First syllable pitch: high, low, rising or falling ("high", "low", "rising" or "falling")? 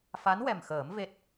rising